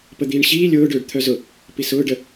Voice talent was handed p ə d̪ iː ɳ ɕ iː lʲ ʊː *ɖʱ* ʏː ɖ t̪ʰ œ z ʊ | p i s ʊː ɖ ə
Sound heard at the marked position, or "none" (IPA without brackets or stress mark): ɖ